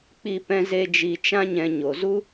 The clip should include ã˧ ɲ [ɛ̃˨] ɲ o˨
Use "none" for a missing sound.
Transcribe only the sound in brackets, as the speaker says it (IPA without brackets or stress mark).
ɛ̃˨